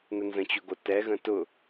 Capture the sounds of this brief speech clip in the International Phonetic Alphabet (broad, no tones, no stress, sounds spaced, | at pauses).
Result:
n ə n z ə̃ t͡ɕ ʊ ɡ o t ɛ ɣ ə̃ t ʊ